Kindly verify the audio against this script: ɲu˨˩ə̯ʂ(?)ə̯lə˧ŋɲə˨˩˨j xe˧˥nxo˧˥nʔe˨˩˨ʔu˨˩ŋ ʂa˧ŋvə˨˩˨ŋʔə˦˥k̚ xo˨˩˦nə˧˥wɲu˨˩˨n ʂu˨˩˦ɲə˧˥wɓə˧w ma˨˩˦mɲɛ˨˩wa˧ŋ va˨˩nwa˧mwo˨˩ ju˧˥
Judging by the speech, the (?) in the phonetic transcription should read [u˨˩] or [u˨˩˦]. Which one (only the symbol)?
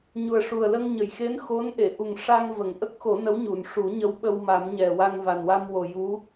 u˨˩